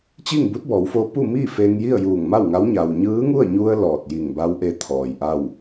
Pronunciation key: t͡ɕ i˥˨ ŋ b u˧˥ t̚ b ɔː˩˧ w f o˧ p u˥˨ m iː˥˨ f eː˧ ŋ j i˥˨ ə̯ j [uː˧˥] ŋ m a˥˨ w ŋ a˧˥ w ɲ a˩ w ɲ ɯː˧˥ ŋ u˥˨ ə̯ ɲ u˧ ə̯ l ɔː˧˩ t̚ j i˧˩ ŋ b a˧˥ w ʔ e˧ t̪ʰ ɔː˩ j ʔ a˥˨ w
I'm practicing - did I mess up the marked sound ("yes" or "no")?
yes